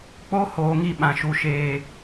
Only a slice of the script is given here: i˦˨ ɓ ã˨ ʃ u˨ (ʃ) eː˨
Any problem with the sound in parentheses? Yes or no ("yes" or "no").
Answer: no